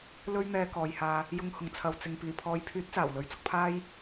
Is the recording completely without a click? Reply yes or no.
yes